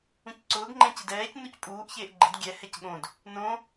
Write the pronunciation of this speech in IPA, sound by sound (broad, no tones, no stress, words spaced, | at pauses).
ũcǀʊːɡŋ͡ǃɛ̃cɪd ɛːc nucpʼuːʔ çeːʔɡ͡ǃɪd ɡʲɛ hɛcɠõd | nõ